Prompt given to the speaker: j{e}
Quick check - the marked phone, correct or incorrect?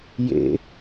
incorrect